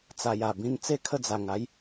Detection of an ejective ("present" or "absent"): absent